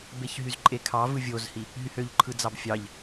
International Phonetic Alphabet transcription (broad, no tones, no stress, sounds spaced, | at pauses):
b e ç ɦ y z ǃʼ e kʰ ɑ v ɯ vʲ o z h i | ɦ y h ø ʎ ǃʰ ɯ d͡z ɑ b fʲ ɑ ʎ